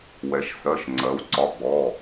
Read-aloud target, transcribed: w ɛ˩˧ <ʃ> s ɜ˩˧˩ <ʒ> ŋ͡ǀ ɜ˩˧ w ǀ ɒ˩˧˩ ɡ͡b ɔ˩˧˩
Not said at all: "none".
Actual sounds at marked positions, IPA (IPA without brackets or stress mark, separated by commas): ʃ, ʃ